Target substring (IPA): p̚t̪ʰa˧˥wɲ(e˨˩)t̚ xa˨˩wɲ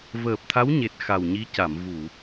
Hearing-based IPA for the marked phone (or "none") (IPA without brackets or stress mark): e˨˩